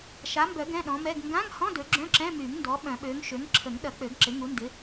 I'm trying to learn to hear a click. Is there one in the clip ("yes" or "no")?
yes